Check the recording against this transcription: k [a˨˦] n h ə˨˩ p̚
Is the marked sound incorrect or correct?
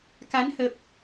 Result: correct